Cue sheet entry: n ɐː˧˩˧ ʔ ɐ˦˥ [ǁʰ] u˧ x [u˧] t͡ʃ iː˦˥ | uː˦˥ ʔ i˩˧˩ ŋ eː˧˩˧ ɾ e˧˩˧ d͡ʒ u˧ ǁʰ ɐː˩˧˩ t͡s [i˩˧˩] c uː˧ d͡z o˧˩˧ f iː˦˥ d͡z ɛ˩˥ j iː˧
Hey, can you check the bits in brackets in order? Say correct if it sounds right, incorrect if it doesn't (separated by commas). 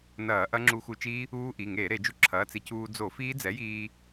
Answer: incorrect, correct, incorrect